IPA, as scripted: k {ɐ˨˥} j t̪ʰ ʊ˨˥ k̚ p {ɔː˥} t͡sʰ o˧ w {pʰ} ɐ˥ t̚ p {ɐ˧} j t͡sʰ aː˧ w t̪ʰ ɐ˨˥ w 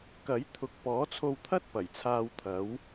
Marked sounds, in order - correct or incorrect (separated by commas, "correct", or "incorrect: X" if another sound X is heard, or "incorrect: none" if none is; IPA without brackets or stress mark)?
correct, incorrect: ɔː˨˥, incorrect: t̪ʰ, incorrect: ɐ˨˩